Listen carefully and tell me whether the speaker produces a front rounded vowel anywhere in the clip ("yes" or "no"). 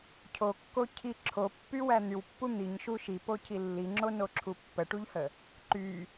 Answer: yes